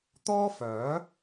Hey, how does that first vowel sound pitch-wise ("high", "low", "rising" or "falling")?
high